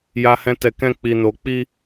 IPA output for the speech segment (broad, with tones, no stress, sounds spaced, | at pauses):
j a˦ h ɛ̃˦ t ɛ˦˨ k ɛ̃˧ k͡p i˨ n o˨ k͡p i˧